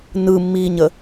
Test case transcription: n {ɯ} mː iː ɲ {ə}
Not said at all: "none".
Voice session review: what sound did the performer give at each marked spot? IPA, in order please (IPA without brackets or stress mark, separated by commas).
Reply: ɯ, ə